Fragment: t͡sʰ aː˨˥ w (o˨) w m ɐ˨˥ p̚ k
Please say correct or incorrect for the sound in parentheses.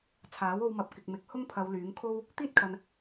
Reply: incorrect